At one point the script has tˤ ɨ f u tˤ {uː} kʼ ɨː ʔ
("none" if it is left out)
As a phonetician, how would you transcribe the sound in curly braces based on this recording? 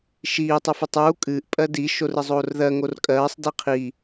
uː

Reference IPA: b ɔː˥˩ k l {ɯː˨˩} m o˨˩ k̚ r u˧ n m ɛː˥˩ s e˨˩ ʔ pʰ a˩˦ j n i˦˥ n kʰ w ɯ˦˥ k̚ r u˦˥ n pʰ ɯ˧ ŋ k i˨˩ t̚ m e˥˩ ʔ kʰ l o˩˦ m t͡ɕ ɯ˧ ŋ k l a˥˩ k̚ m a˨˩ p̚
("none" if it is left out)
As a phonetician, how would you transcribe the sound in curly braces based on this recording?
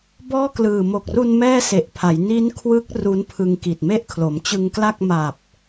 ɯː˨˩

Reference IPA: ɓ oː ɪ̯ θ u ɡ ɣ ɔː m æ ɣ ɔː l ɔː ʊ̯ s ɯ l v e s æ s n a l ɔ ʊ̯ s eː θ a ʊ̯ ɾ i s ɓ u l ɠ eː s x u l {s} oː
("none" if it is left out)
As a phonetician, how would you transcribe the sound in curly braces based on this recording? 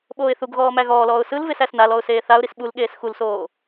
s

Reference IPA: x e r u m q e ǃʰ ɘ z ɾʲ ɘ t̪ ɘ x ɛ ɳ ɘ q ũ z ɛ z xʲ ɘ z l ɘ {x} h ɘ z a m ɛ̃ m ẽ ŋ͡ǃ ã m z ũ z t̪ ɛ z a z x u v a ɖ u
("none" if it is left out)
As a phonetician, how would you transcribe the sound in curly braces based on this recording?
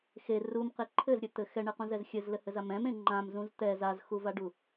none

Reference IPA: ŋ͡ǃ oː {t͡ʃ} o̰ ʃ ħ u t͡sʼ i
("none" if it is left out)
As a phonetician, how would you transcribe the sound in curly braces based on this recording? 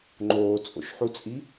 t͡sʼ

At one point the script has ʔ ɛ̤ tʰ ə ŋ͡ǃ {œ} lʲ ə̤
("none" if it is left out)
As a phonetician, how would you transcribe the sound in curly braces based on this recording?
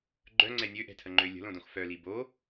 ø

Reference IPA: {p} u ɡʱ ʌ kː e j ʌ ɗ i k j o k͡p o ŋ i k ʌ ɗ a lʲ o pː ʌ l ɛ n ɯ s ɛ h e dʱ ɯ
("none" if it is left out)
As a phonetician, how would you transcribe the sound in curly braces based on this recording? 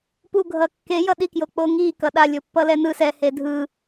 p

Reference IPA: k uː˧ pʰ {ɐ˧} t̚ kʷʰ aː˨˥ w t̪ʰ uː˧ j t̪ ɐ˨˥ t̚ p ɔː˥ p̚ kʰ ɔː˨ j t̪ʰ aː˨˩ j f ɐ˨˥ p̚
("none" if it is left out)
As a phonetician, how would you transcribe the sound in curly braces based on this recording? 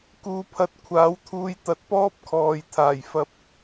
ɐ˧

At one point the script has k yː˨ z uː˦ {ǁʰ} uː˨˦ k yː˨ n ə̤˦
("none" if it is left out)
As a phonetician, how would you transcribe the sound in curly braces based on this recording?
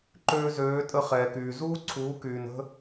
ǀʰ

